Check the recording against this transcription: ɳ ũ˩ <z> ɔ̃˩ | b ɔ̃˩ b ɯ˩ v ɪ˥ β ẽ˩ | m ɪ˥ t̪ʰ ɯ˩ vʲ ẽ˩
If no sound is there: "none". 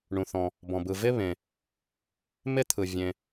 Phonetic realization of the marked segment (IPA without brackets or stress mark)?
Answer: θ